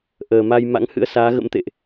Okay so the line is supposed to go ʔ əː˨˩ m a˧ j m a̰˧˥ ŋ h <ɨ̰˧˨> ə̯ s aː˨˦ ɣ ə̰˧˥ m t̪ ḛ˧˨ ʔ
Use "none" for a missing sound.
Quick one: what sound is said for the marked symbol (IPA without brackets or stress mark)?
ɨ̰˧˥